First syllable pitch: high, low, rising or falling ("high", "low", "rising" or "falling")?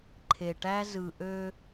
low